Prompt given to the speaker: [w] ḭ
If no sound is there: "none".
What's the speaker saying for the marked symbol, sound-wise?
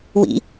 w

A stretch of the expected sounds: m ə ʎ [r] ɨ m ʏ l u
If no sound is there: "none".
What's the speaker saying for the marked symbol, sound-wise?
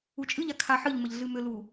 ɮ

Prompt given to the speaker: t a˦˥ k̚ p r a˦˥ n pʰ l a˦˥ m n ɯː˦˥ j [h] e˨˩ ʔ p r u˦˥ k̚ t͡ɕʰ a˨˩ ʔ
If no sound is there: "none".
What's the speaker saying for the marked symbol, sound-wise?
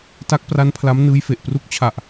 f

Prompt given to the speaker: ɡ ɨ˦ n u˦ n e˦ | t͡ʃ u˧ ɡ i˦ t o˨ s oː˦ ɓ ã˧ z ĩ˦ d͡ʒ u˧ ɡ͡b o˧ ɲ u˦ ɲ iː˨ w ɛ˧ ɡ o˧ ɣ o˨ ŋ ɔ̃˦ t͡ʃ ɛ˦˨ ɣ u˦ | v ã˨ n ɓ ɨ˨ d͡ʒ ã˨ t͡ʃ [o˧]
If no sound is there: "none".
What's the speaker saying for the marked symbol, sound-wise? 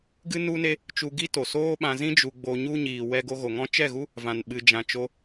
o˧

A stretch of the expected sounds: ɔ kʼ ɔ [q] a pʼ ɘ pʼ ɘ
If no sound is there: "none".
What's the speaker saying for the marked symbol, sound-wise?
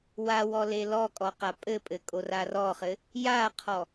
q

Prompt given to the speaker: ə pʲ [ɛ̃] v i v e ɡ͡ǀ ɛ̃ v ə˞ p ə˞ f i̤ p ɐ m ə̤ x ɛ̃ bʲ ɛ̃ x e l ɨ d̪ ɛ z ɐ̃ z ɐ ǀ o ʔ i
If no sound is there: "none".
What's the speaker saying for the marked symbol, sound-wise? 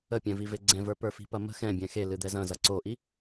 ɛ̃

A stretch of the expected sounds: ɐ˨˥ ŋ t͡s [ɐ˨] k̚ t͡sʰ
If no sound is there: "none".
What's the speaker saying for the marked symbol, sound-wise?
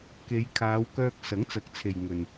ɐ˨˥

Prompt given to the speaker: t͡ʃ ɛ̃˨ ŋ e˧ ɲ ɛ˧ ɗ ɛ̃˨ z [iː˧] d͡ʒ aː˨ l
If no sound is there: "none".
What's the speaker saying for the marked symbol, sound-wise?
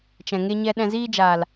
iː˧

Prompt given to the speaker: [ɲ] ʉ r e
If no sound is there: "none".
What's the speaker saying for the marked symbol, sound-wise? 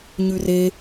ɲ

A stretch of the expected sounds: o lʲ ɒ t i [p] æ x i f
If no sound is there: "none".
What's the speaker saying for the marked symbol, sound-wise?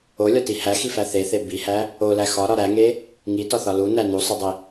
h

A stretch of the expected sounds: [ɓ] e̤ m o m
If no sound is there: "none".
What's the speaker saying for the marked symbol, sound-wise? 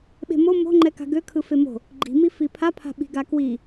ɓ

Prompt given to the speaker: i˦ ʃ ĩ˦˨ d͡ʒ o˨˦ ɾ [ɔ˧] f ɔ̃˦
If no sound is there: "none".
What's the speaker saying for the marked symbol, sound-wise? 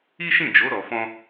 ɔ˧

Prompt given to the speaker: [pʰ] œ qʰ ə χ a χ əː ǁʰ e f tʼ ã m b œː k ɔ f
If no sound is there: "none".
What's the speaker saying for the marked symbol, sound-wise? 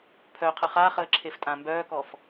pʰ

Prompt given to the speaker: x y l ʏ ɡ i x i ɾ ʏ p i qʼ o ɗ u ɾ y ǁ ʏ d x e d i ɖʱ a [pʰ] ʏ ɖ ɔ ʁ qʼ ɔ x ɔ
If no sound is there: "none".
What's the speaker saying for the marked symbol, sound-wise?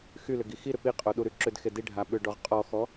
ɓ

